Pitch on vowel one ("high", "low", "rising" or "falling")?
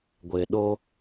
low